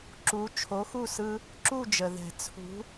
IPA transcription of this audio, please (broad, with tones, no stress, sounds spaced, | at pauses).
ǁ u˨˥ t͡ʃʰ o˨˥ x u˥˨ s ɯ˦ | ǁ u˥˨ d͡ʒ ə˩ ð ɛ̤˨˩˦ t͡sʰ ṳ˨˥